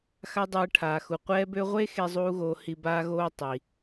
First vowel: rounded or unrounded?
unrounded